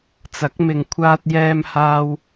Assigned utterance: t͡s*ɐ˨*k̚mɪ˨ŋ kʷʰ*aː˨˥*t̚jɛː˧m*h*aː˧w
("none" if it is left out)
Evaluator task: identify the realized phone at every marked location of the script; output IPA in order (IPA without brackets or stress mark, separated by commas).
ɐ˨˥, aː˧, h